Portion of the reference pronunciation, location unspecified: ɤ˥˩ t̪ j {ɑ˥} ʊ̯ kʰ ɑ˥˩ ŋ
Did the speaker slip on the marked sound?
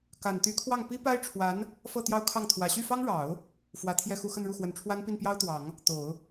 no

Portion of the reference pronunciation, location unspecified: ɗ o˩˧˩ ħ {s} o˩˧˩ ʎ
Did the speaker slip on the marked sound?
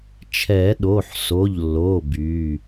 no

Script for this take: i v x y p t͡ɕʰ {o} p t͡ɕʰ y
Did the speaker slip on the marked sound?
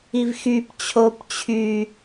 no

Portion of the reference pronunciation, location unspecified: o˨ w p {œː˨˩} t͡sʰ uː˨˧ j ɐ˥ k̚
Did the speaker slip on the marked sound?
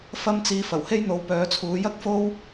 yes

